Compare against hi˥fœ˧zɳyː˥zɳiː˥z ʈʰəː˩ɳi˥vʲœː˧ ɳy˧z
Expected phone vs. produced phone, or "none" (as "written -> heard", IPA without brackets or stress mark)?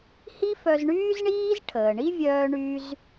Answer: none